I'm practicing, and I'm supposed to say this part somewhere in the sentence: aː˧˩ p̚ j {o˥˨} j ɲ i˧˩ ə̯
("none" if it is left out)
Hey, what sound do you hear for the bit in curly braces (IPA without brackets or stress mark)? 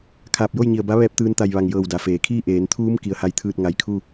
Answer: o˥˨